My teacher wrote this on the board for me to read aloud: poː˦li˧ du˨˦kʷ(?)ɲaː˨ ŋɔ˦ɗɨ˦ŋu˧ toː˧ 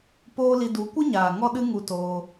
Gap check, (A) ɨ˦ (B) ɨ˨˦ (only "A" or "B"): A